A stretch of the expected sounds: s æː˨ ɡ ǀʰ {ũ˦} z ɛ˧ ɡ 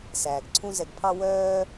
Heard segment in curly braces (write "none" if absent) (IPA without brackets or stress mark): ũ˦